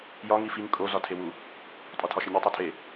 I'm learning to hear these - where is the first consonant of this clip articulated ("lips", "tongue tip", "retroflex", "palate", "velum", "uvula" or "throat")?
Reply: palate